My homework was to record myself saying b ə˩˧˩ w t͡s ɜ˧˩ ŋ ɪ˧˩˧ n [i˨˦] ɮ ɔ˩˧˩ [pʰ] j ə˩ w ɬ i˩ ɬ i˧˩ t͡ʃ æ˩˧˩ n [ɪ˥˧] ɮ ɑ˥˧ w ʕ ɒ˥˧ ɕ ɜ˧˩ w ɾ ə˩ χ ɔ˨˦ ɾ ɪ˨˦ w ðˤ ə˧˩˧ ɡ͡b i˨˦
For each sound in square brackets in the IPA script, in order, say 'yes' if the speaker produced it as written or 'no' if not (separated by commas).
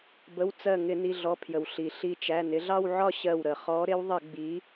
no, yes, no